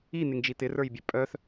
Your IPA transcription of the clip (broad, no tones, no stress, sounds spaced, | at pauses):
i n̪ ɪ ŋ d͡ʒ i t̪ ɪ r ə˞ j bʲ ɛ pʼ œ θ